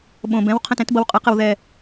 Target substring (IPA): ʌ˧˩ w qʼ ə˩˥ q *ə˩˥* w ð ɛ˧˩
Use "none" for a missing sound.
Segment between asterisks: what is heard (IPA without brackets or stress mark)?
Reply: ə˧˩